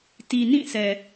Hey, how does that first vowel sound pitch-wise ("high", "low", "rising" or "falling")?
low